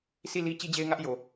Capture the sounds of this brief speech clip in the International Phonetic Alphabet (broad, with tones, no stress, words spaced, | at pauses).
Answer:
si˦˨li˦ t͡ɕi˦d͡ʑe˦ɪ̯ŋä˦ʔ jo˨